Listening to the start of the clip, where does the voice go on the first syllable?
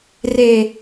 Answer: low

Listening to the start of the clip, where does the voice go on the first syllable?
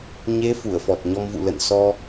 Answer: rising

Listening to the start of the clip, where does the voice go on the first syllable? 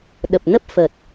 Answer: low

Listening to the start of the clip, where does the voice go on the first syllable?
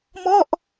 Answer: falling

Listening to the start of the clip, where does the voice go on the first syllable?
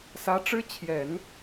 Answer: rising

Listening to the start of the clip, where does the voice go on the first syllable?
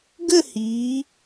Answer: falling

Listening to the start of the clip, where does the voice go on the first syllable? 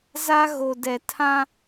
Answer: high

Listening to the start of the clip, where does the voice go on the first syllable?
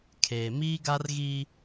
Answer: low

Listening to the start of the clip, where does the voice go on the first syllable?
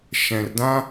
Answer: low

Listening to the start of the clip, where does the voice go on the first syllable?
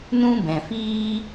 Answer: high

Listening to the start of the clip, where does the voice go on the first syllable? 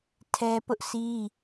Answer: high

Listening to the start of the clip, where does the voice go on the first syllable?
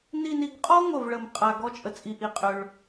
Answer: falling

